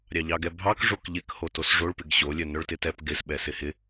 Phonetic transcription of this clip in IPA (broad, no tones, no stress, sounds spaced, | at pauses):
ɾʲ ɑ ʎ ɑ ɡ ɛ bʱ ɑ k ʐ o k ʎ ɪ k h o t o s ʐ o ɭ p ɪ ɡ ɕ o lʲ œ n œ ɭ t ɪ t ɛ p ɡ ɪ s ɓ ɛ s ɪ h ɪ